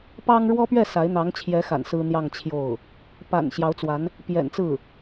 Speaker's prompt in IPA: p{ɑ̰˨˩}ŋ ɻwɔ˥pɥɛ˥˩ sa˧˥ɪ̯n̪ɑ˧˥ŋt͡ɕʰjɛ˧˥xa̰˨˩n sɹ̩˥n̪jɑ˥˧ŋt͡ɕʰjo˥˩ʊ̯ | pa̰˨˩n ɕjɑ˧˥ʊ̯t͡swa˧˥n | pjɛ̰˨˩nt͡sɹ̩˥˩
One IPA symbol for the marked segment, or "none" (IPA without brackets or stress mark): ɑ˥